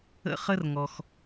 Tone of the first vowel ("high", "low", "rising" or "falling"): high